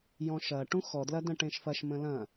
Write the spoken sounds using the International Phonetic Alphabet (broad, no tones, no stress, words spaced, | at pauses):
jɔ̃ʃɐ ʈũxɔdlɐ də̃ʈẽʃfɐʃ mə̃lɐ̃